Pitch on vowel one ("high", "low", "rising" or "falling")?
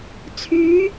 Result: rising